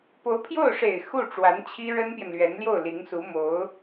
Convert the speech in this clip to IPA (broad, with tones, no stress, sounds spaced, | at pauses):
p o˧˥ ʊ̯ pʰ j o˥˩ ʊ̯ ʂ e˨˩ ɪ̯ x u˥˩ ʈ͡ʂ w a˧˥ n t͡ɕʰ i˥ ɻ ə˥ n p j ɛ˨ n l ɥ ɛ˧˥ n l j o˥˩ ʊ̯ l i˧˥ ŋ s u˧˥ m o˧˥ ʊ̯